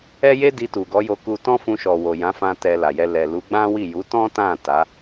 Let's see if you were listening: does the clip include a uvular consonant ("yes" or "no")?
no